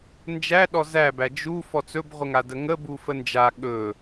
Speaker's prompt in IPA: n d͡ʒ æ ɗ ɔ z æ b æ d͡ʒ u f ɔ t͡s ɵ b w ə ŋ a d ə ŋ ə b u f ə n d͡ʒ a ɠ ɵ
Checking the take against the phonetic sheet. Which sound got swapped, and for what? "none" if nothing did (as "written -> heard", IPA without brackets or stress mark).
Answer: w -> ʁʷ